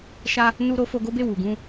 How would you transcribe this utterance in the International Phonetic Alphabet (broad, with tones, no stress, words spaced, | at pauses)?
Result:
ʃa˦ | nu˦ɾo˦ fo˧ɡo˦be˦˨ wu˨ɡũ˧